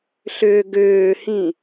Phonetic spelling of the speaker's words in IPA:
ɬʏːɡʏːhĩ

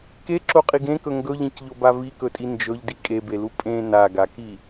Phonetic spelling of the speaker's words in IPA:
keǁoqʼiɡ ẽkɵ ŋɡɵʎĩcʎoba vikɵtʼi nd͡ʒɵʎdi kʼebelu pʼẽ naɡaki

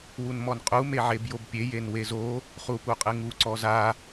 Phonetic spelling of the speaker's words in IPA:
wunmɔnqʼu meʕebjobpʲe jenwezo | χupuqʼɨŋu ǀɔza

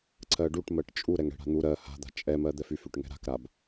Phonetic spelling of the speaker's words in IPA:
ǀɜɖuʈmɜʈ t͡ʃʼu ɾɛŋɽɛ̤ɽa̤n̪u ɾɜ ha̤d̪a̤ t͡ʃʼɛmɜ d̪ɛfyfyʈ ŋɛ̤ɾa̤kɾab

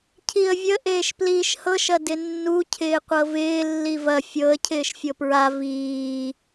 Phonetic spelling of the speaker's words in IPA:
cʰiə̯vʲə ʔeːʃpliːʃhɤʃɐ dɪnːucʰɪː qʷɤvɪː lːivɐ fʲɤə̯ cʰɪːʃfʲɤpɹa viː

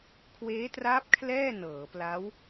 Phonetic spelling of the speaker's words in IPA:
kʰweː˦˥tra˦˥p̚ kʰlɛː˥˩ nɤː˩˦pla˦˥w

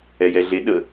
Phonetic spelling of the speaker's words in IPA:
ɛjɛɮe ɗə

